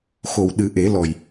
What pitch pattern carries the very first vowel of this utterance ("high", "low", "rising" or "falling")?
low